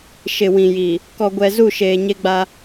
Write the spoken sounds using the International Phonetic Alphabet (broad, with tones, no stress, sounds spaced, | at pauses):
ʃ ɪ˨ w ĩ˨ j i˨ | k ɔ˨ ɡʷ ɛ˨ z u˦˨ ʃ eː˨ ɲ e˦ ɡ͡b a˦